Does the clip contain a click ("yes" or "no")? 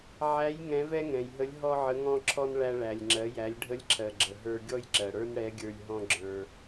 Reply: yes